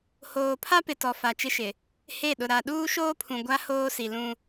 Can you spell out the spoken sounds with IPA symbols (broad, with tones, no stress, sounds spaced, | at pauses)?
h oː˨ pʰ a˦ p ɪ˨ t ɔ˨ f a˨ t͡ʃ ɪ˦ ʃ ɪ˨ | h e˦˨ ɗ ʊ˨ ɾ a˨ ɗ uː˦ ʃ oː˦ pʰ ũ˨ ɡʷ a˦ h oː˦ s i˨ l ũ˦